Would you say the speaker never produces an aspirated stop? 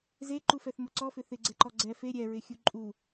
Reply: yes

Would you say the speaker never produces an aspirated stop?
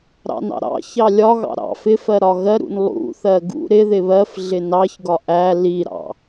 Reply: yes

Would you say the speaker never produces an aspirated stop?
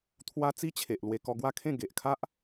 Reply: no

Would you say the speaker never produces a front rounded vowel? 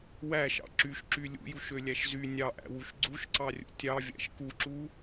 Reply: no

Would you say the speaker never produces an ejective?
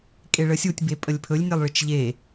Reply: no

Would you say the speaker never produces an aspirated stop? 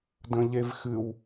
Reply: yes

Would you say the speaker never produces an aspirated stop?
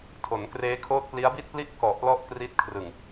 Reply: no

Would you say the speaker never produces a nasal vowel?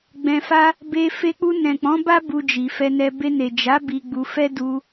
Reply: no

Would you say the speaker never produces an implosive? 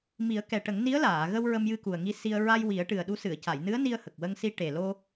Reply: no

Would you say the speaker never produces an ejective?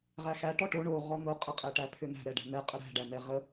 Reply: no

